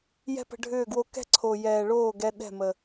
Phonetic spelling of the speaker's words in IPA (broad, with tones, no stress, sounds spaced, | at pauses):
j ɛ̤˦ p ə̤˧ ɖʱ ʏː˦˨ ɡ w o˧ k ɛ̤˦ ǀʰ o˨ j ɛː˨ ɭ oː˦˨ ɡ ɛ˧ ɗ ɛ̤˦˨ m ə˨